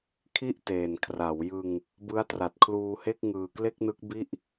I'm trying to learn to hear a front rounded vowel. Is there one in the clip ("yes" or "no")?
no